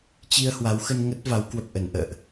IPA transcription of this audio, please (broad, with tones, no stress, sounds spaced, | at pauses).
t͡ɕ i˧ ə̯ h w a˨˦ w x ə˧ n ŋ ə˦˥ t̚ v a˨˦ w k w ə˨˩ p̚ ʔ ə˧˩ n ʔ ə̰ː˧˨ ʔ